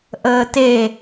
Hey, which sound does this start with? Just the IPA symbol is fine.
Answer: ʔ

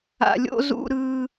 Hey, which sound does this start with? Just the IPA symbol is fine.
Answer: a̰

